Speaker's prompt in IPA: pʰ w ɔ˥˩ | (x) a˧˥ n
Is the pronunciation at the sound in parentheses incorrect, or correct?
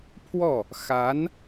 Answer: correct